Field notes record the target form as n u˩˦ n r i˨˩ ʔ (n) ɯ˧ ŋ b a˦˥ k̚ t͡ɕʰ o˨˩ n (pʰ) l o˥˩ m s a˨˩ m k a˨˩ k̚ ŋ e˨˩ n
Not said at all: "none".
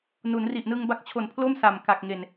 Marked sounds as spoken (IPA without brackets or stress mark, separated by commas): n, pʰ